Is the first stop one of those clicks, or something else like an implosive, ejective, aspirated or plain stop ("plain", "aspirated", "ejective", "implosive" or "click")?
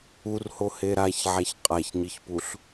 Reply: ejective